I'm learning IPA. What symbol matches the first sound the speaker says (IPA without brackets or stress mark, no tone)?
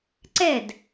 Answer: ǀ